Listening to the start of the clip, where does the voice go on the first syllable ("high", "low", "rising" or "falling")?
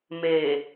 low